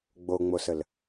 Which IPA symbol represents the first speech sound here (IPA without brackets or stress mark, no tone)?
ɡ͡b